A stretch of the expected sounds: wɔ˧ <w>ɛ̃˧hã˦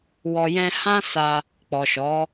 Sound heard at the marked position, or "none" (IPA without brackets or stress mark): j